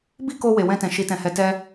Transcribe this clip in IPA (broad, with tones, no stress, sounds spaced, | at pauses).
b i˦ k o˧ w e˨ w ɛ̃˧ t ɛ̃˨ ʃ i˨˦ t ɛ̃˧ h ɛ˧ t ɛ˦